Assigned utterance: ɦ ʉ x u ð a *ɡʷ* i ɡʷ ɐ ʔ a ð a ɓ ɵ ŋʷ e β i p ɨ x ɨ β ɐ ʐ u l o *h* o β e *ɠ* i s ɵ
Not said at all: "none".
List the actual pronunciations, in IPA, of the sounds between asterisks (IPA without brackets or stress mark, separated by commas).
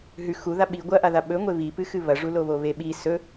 ɓ, β, ɓ